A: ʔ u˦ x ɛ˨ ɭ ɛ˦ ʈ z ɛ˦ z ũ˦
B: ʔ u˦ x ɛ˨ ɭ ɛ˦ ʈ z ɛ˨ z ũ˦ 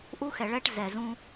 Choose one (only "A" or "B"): B